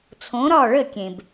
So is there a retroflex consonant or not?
yes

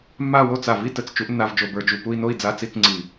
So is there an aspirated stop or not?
no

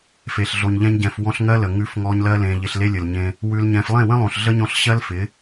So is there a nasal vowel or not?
yes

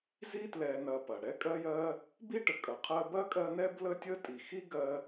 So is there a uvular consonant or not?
yes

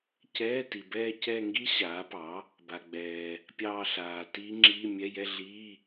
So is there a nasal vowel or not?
no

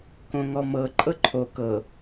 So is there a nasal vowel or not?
yes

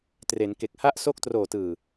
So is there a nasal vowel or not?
no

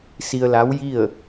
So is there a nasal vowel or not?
no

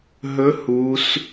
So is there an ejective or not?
no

